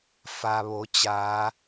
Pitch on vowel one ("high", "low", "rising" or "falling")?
low